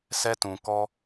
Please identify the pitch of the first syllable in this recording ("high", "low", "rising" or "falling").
high